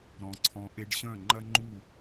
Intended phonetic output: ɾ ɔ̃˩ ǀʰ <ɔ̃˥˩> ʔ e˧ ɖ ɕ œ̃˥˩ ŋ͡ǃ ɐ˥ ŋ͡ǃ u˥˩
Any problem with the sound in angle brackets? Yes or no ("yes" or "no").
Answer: yes